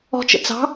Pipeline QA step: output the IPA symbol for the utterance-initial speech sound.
ɔ̤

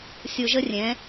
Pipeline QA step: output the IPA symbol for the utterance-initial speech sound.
sʲ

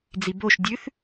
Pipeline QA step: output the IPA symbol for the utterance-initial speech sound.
d͡z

